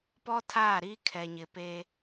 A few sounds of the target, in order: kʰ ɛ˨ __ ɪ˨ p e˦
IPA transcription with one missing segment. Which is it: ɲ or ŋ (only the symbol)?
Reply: ɲ